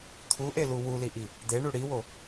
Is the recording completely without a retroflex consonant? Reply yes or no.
no